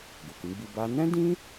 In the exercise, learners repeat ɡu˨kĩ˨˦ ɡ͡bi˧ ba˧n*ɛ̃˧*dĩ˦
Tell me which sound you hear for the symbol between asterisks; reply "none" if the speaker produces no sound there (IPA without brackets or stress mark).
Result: ɛ̃˦